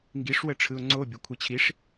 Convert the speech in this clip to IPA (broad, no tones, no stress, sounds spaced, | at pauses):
ŋ ɡ i ʂ w ə ʈ͡ʂʰ ɯ ʊ̯ ŋ͡ǀ o bʲ o kʷʰ ɤ t͡ɕʰ i ʂ